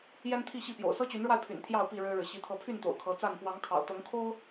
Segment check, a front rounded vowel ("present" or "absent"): present